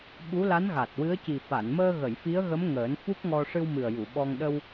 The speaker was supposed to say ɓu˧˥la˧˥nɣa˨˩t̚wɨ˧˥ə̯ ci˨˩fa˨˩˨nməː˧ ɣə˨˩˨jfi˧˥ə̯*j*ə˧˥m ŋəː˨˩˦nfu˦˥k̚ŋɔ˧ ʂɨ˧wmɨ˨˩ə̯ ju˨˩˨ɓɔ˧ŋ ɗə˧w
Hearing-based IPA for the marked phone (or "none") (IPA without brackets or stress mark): ɣ